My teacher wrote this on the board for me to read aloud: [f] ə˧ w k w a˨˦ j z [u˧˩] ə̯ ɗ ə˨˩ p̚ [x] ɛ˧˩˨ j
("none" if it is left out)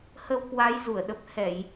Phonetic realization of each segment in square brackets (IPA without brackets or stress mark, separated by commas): h, u˧˩, h